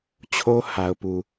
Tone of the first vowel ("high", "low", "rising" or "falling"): high